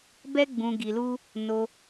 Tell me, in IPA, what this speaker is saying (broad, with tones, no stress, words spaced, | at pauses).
bɛ˦ɡ͡bũ˧ɡi˧lu˦ | no˧